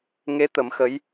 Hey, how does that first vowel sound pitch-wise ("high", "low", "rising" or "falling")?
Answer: rising